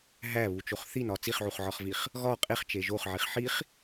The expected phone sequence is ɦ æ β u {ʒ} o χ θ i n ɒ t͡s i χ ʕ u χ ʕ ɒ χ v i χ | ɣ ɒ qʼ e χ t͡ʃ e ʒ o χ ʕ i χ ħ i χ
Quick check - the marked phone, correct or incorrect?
incorrect: t͡ʃ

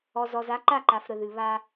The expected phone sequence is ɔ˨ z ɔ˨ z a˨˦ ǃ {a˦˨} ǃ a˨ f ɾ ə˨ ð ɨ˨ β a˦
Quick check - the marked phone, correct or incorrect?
correct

